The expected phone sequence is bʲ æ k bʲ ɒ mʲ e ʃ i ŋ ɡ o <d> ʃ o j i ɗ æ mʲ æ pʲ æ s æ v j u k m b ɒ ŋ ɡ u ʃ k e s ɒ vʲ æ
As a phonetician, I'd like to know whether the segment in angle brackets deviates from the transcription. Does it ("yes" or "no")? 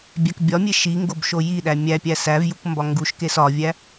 yes